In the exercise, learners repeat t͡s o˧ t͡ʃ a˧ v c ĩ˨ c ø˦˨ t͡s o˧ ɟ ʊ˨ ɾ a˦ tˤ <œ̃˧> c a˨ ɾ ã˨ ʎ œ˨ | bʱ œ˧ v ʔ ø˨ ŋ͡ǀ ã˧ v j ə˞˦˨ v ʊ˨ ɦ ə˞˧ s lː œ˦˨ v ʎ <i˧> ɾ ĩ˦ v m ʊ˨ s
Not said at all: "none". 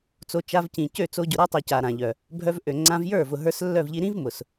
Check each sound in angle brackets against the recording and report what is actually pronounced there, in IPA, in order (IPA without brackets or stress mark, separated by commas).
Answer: œ˧, i˧